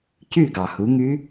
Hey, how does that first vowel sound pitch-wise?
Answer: falling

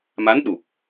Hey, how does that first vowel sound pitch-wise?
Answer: rising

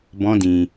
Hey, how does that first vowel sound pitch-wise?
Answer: high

